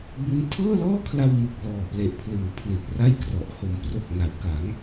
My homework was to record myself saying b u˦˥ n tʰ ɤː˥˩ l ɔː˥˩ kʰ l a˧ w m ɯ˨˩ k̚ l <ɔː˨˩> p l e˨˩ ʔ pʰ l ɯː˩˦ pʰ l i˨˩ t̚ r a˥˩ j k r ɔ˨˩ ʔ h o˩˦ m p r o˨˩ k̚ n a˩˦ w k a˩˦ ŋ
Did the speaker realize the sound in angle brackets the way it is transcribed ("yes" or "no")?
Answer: yes